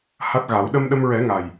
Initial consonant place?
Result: glottal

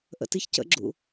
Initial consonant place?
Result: glottal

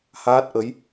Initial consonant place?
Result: glottal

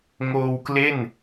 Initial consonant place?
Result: velar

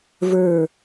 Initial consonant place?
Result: labial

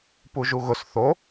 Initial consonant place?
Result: labial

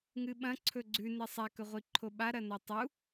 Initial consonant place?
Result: velar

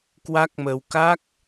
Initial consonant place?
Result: velar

